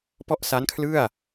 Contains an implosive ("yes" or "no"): no